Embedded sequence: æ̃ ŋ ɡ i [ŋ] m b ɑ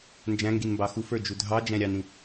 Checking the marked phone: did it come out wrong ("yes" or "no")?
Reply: yes